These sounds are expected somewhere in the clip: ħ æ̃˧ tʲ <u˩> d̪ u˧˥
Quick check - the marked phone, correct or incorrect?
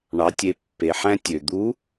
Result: incorrect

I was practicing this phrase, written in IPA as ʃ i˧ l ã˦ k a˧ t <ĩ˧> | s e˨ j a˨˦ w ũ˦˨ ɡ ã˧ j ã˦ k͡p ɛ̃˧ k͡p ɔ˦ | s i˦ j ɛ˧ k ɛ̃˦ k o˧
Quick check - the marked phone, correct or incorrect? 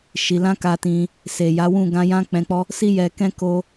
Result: correct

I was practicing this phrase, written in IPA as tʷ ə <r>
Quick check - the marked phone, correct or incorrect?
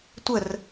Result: correct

